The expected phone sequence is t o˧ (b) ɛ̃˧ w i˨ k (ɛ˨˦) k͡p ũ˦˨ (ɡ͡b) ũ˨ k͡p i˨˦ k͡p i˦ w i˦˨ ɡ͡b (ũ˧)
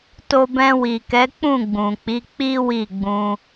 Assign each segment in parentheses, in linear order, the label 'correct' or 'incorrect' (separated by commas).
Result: correct, correct, correct, correct